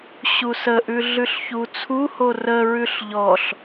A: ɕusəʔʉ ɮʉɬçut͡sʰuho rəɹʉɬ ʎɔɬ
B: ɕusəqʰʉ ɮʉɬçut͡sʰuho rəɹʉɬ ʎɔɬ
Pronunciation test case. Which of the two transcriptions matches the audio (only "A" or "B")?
A